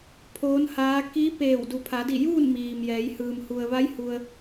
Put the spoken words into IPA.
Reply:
pʰ oː˧˥ n h aː˧˥ k iː˧˥ p eː˧˩ w d u˩ pʰ a˩˧ d i˧˩ j uː˥˨ n m iː˩ m j ɛː˩˧ j h ɯː˩ m h u˩ ə̯ ʋ a˧˥ j h u˧ ə̯

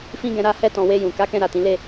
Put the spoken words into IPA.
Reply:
f ĩ˦ ɡ ɛ̃˧ ɾ a˦ h ɛ˧ t ɔ̃˨ w e˧ j ũ˨ k a˨˦ k ɛ̃˧ ɾ a˨ t ĩ˨˦ l e˦˨

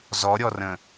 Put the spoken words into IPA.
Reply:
z ɔ ɾʲ ɔ r ə̃

